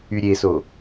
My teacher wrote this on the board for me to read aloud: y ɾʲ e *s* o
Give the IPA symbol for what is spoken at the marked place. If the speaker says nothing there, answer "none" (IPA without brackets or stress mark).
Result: s